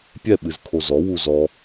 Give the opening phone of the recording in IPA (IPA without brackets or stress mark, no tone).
pʲ